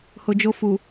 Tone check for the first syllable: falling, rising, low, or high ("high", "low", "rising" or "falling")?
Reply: low